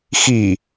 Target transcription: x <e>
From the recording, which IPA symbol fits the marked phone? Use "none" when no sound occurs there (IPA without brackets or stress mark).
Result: i